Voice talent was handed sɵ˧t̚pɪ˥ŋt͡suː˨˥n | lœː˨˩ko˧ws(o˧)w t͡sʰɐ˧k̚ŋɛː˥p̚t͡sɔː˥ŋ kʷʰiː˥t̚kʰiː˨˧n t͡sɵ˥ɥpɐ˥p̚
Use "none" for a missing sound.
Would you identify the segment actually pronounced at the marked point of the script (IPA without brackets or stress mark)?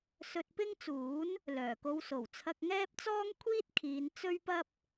o˨˩